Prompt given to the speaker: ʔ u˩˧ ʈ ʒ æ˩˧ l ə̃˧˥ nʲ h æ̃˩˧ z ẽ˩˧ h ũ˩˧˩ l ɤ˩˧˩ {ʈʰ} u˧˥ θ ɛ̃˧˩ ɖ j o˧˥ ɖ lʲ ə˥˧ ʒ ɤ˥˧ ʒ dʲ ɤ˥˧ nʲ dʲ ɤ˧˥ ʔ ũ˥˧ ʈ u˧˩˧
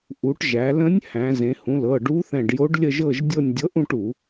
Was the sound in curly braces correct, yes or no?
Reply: no